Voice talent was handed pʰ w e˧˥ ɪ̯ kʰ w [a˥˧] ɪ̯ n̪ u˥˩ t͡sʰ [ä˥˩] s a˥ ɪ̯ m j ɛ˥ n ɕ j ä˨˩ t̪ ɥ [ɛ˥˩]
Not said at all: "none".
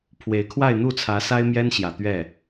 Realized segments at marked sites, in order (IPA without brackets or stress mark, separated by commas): a˥˧, ä˧˥, ɛ˥˩